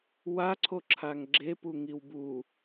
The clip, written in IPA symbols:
w a ǀʰ o ǁʰ a ŋ ɡ͡ǁ e p u ŋ i w b u

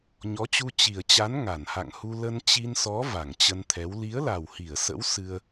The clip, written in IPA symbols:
ɲ ɔ˨˦ t͡ɕ u˧ t͡ɕ i˨˩ ə̯ t͡ɕ a˨˦ n ŋ a˧˩ n h a̰˧˨ ŋ h u˧ l ə˧ n t͡ɕ i˧ n s ɔ˨˦ v a˧˩ ŋ t͡ɕ ə˧ n t̪ʰ ɛ˨˦ w l i˨˦ ə̯ l a˨˩ w h i˧˩ ə̯ s ə̰˧˥ w s ɨ˧ ə̯

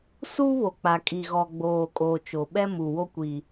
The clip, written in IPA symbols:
s uː˦ β o˨ k͡p a˨ kʼ i˨ ɣ ɔ˨ ɡ͡b oː˨ kʼ oː˨ t͡ʃ o˨ ɓ ɛ˦ m u˨ w o˦ kʷ i˦

